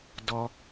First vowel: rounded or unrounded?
rounded